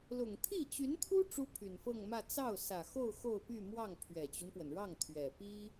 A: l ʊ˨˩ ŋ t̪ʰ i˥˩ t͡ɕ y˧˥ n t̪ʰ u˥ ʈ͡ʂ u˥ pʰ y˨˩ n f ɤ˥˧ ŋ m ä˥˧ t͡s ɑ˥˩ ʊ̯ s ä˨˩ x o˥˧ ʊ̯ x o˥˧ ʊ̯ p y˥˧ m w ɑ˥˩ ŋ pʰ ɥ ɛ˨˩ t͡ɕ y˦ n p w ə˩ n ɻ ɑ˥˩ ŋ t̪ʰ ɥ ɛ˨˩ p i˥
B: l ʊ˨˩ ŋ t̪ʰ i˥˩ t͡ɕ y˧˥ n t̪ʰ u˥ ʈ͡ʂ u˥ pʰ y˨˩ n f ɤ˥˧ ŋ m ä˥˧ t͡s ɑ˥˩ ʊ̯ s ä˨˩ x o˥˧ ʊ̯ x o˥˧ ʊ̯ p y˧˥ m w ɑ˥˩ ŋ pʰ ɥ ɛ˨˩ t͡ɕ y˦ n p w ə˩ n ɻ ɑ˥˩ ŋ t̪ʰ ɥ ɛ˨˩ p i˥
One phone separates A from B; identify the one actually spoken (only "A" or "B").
A